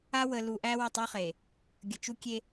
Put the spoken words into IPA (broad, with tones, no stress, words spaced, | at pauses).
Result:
a˦wə˨lu˨ʔæ˦ wə˦˨tˤu˦χe˨ | ɡʲə˨t͡ʃu˦kʲe˦